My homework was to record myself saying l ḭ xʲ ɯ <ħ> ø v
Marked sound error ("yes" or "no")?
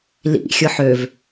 no